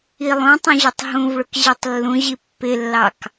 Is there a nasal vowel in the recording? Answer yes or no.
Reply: yes